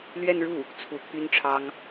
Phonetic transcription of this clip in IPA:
l ɥ ɛ˥˧ n ɻ u˥˩ | t͡sʰ u˧˥ t̪ʰ y˥ n ʈ͡ʂʰ ɑ˥ ŋ

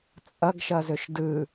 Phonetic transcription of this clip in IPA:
t͡sʼ ʌ ɡ ʃ ʌ z ɵ ʃ d ɯ

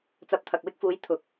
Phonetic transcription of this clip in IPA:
t͡s ɐ˨ p̚ t̪ʰ ɐ˨ k̚ w ɪ˧ k̚ f uː˨˧ j t̪ʰ ʊ˨˥ k̚

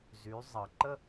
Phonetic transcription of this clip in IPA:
z y˩˧ zˤ ʌ˩ ǃ ə˥

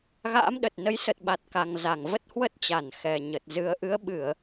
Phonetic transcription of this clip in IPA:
ɣ a̰ː˧˥ m ɗ ə˨˩ t̚ n ə˨˦ j s ə˨˩ t̚ ɓ a˨˩ t̚ k a˨˩ ŋ z a˧˩ ŋ v ə˦˥ t̚ h w ə˦˥ t̚ t͡ɕ a˧˩ n x ɛ˨˩ ɲ ə˨˩ t̚ z ɨ˨˩ ə̯ ʔ ɨ˨˦ ə̯ ɓ ɨ˧˩˨ ə̯

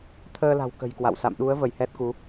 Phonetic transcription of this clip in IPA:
t̪ʰ əː˧ l a̤˨˩ w k ə̤˨˩ j k w a̰˧˨ w s a̰˧˨ m ɗ u˨˦ ə̯ v ə˧˩ j h ɛ˦˥ t̚ k u˨˦

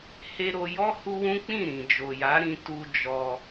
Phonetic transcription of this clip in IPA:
h e˧ ɾ o˧ j ɔ˦ h u˦ w ũ˦ k͡p ĩ˦˨ ɾ ĩ˨ d͡ʒ o˨ j a˨˦ ɾ ĩ˧ t u˧ d͡ʒ ɔ˧

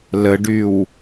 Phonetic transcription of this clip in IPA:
l ə ɖ y w

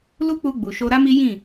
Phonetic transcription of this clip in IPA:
l u˦ k͡p u˧ ɡ͡b u˨ ʃ o˧ ɾ a˦ m i˦ j ĩ˦˨

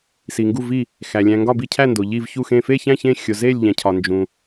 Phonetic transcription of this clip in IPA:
s i˧ ŋ ɡ u˥˧ v i˥˧ | x æ˧ lʲ æ̃˧ ŋ ɡ ɒ˥˧ b i˥˧ cʰ æ˥˧ n d o˧ ʎ i˥˧ v ç u˥˧ x ẽ˥˧ f e˥˧ ç æ̃˥˧ ç ẽ˥˧ xʲ o˧ z e˥˧ lʲ ʎ æ̃˧ cʰ ɒ˧ n d͡ʒ ũ˧

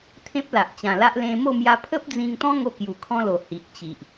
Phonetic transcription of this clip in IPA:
t̪ʰ ẽ˦ p̚ l a˨ ʔ t͡ɕ ã˨˩ l a˦ ʔ l ẽ˧ m o˥˧ m j a˧ pʰ ə˦ p̚ d͡z ĩ˧ ŋ t̪ ɔ̃˦ ŋ o˦ k j u˨˩ kʰ ɔ̃˦ l o˨˩ h i˨ ʔ t͡ɕ i˨ ʔ

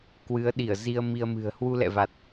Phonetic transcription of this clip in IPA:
k w ɨ˨˦ ə̯ ɗ i˧˩ ə̯ z i˧ ə̯ m i˧ ə̯ m ɨ̤˨˩ ə̯ h w u˧ l ɛ̰˧˨ v a˨˩ t̚

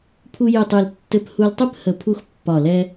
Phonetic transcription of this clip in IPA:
pʰ u˧ j ɯ˨˩ tˤ ɯ˨˩ l tː ɘ˧ p h u˧ l tˤ ɯ˦˥ p h ə˨˩ pʰ u˧ x pː ɒ˨˩ l ɛ˧

